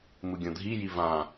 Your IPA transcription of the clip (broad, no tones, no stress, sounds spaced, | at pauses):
m ɯ ɡʲ õ dʱ i j i v ã